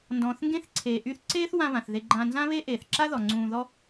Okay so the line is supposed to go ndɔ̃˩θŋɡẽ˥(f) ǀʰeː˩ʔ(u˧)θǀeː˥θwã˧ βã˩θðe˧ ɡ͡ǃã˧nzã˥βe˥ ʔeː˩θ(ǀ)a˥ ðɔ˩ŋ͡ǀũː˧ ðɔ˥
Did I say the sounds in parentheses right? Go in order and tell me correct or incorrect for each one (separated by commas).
incorrect, incorrect, incorrect